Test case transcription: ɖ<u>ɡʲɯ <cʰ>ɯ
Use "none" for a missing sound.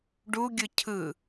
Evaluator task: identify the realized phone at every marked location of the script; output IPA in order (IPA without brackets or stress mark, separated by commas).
u, cʰ